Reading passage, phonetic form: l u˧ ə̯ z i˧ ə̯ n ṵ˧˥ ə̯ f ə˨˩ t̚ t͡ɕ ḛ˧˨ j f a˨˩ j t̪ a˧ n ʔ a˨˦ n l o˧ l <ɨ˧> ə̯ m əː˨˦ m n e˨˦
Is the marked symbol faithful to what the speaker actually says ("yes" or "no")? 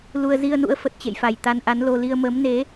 no